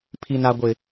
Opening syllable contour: low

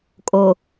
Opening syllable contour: low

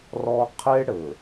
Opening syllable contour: high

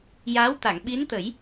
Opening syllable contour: rising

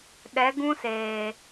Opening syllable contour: rising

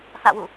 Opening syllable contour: falling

